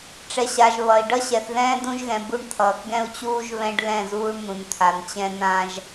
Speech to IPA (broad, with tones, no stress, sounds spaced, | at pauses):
ʈ͡ʂ ɛ˨ ɕ a˨ ʒ β ʌ˨ i̯ ɖ ʌ˦ ɕ ɛ˨ θ ð ɛ̃ː˦ d ũ˦ ʒ ɣ ɛ̃˨ b u˦˨ ɳ t̪ʰ ʌː˨ k ɡ ɛ̃˦ u̯ t͡ɕ uː˦ ʒ β ɛ̃˦ ɖ l ɛ̃˦˨ z uː˦ ɳ n̪ ũ˨ n t̪ʰ a˨ n t͡ɕ ɛ̃˦ n ã˦ ʒ